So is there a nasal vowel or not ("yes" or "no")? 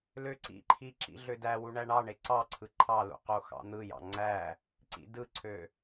no